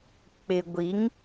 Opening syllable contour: low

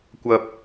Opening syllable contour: high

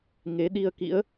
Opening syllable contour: rising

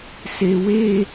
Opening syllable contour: low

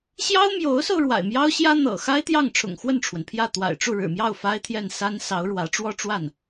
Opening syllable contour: high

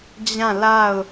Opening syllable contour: falling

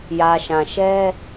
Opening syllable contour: low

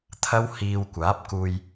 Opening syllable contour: high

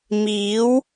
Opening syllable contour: rising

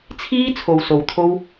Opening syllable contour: high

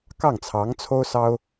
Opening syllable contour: falling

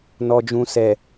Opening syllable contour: low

